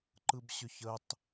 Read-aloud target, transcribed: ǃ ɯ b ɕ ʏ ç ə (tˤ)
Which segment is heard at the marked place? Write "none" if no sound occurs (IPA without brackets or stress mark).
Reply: tˤ